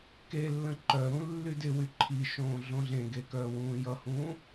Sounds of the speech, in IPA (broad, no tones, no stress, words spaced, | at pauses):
kelːə̃ ǃœɾũ lːydɪwy ǃʰiʃõː ɮõɮẽɡe kœːwũːjʌhũː